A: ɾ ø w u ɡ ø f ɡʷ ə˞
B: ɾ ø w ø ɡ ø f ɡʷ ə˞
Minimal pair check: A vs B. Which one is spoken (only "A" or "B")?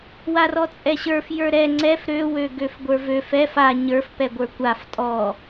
B